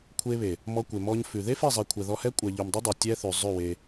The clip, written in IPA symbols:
kʷʰ e˧ β e˨ | m ɔ˧ kʷ e˨ m ɔ˧ ɲ f ʉ˨ ð e˦ f e˦˨ zˤ i˨ kʷʰ ɛ˨ ð ɔ˧ h ɛ˦ kʷʼ ɛ˨ ʎ ʉ˨ m dˤ e˦ dˤ e˨ tʲ ɛ˦ θ ʉ˨ zˤ ʉ˦˨ w e˧

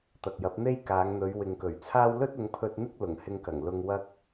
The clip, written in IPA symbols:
t̪ ɐ˨ k̚ j ɐ˨˥ p̚ n̪ e˥ j k aː˨˧ ŋ n̪ ɵ˨˧ ɥ w ɪ˨ ŋ k ɵ˨˩ ɥ t͡sʰ aː˥ w l ɵ˥ t̚ ʊ˨˧ ŋ pʰ ɵ˧ t̚ n̪ ɪ˥ k̚ l ʊ˨˩ ŋ h ɪ˧ ŋ k ɐ˨˩ ŋ l ʊ˧ ŋ w ɐ˥ k̚

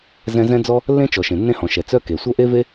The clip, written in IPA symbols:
z ɛ̃˥ z ɛ̃˥ d͡z ɔ˥ | lː ẽ˥ t͡ʃ ɔ˩ ʃ ẽ˩ nː ẽ˥ h ɔ̃˩ ʃ ɛ˩ t͡s œ˥ k e˩ sʷ œ˥ ʔ e˥ v e˥

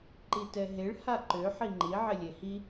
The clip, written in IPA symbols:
ǃ i t ɛ ɦ e ɭ h a ǃ ø ħ i ŋ͡ǃ i ʕ ɪ lʲ e h i

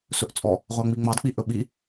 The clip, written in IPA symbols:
s ɵ ʔ t͡sʼ ɔ | ʁʷ a ŋ͡m i ŋ͡m ɑ d k͡p i ʔ ɵ ɓ i

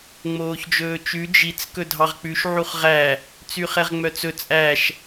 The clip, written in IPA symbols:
ŋ͡m oː ç d͡ʒ ɵː t͡ʃ ʉ d͡ʒ i t͡s k ɵ dʱ ɑ ʁ k͡p ʉ ʃ ʕ u χ ʁ æ | t͡s y χ ɛ ʁ ŋ͡m œ t͡s ɵ t͡sʼ æ ʃ

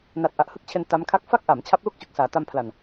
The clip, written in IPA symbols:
n a˨˩ t̚ ʔ a˨˩ ʔ h ɯ˥˩ k̚ t͡ɕʰ e˧ n t a˦˥ m kʰ a˥˩ k̚ f a˥˩ k̚ ʔ a˩˦ m t͡ɕʰ a˦˥ p̚ l u˥˩ k̚ t͡ɕ u˨˩ k̚ s aː˩˦ t a˧ m pʰ l a˨˩ n

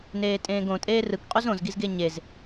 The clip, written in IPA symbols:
n eː tʼ ẽː ɡ õ tʼ eː r ɯ k qʼ u z õ z ɡ i z ɡ e ɲ e z

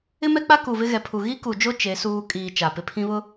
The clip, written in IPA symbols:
ɪ˦ m ɛ˦ k͡p a˦ k u˨ v ɪ˦ ɣ ɛ˨ pʰ u˨ ɣ i˦ k u˨ d͡ʒ o˦ t͡ʃ e˨˦ s uː˦ kʼ iː˨ t͡ʃ a˨ p ɪ˨ pʰ ĩ˦ β ʊ˦

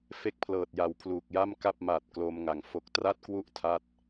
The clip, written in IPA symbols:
f e˥˩ k̚ pʰ l ɤː˨˩ t̚ j a˨˩ w pʰ l uː˨˩ k̚ j a˥˩ m k a˥˩ p̚ m a˨˩ t̚ k l o˧ m ŋ a˨˩ ŋ f o˦˥ k̚ t r a˥˩ t̚ k w u˥˩ ʔ tʰ a˥˩ t̚

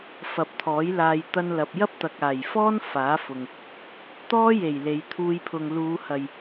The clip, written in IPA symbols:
f ɐ˨˥ p̚ t̪ʰ ɔː˨˥ j l aː˧ j t̪ ɐ˧ n l ɐ˨ p̚ j ɐ˥ p̚ t̪ ɐ˨ k̚ aː˨˩ j f ɔː˥ n f aː˨˥ f ʊ˨ ŋ | t̪ ɔː˥ j e˨˩ j l e˨˧ j t̪ʰ uː˧ j pʰ ʊ˨ ŋ l uː˨˧ h ɐ˨ j

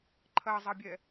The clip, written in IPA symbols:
ǃʰ ɐ zˤ ɐ bʲ ɛ

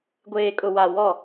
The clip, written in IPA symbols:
ɡʷ eː˨ kʼ ʊ˨ w a˨ w ɔ˦˨

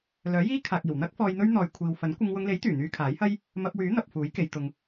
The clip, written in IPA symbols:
l œː˨˥ j iː˥ kʰ aː˨ k̚ iː˨˩ w n̪ ɐ˥ k̚ f ɔː˧ j n̪ ɵ˥ ɥ n̪ ɔː˨ j kʷʰ iː˨ w f ɐ˨˥ n kʷ ɪ˧ ŋ w ʊ˧ ŋ l e˨˥ j t̪ yː˨˩ n̪ yː˧ kʰ aː˨˥ j h ɐ˥ j | m ɐ˧ p̚ w yː˨˥ n̪ ɐ˨ p̚ f uː˨˥ j k e˨˧ j t̪ ʊ˧ ŋ

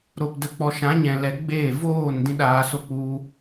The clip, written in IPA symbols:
ɾ o˨ p d ə˨ k͡p ɔ˨ ʃ ã˨˦ ɲ ɛ̃˨ l ɛ˨˦ ɡ͡b eː˦˨ v oː˦˨ n d ĩ˦ ɗ aː˧ s o˦ k͡p u˧

